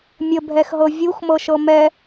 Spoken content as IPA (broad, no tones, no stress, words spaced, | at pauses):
mʲəbʱɛxɦɤ vʲuxmɤʃɤ mɛ